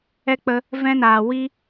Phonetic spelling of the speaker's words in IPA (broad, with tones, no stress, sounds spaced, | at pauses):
ɛ˧ k͡p ə˧ | v ɛ̃˦ n aː˨ w i˦